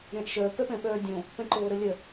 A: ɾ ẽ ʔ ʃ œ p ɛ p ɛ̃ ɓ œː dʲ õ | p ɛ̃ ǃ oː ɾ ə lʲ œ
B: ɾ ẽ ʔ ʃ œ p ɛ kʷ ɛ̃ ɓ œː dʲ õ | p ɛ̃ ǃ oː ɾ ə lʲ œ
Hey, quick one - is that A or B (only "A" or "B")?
A